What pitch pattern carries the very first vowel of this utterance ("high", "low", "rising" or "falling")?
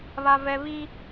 low